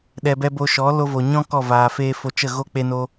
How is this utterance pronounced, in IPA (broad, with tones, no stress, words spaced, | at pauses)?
ɗɛ˧bɛ˦ bo˧ʃɔ˨˦ lo˧vo˨ɲɔ̃˦ kɔ˦˨vaː˨feː˦ fo˧t͡ʃə˦˨ ɣo˦k͡pe˧no˧